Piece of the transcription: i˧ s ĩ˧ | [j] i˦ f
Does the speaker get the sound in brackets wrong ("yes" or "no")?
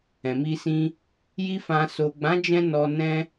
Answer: no